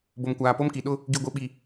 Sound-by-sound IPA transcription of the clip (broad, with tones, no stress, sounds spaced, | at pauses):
b o˨ m kʷ aː˨ p o˦ m k i˨ ɗ ʊ˦ | ɡ i˨ ɡʷ i˨ ɓ i˨